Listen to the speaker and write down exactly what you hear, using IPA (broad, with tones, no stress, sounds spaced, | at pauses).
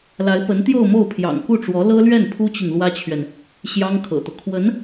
l a˧˥ ɪ̯ p ə˧˥ n t̪ j o˥˧ ʊ̯ m o˥˩ ʊ̯ pʰ j ɑ̰˨˩ ŋ k u˥˩ ʈ͡ʂ w ɔ˧˥ l ɤ˥ l ɥ ɛ˥˩ n pʰ u˥ t͡ɕ i˨ ŋ l w ä˥ t͡ɕʰ ɥ ɛ˨ n | ɕ j ɑ˥ ŋ kʰ ɤ̰˨˩ t̪ ɤ˦ kʰ w ə˧˥ n